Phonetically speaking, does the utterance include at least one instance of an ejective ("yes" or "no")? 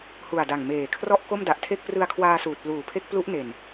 no